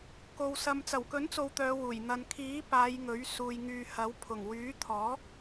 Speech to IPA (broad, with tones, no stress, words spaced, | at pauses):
ko˧wsɐ˧m t͡sɐ˨˩wkɵ˨˥nt͡so˨w t̪œː˨˧wuː˨˩j n̪ɐ˨n kʰiː˨˥ paː˨˧j ŋɵ˨˥ɥ suː˨jŋyː˨hɐ˨˥w pʰʊ˨˩ŋ wyː˨˥t̪ʰɔː˨˥